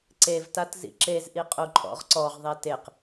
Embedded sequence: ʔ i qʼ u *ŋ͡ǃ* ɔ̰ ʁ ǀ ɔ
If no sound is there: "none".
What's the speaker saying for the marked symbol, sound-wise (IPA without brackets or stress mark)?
ǃʼ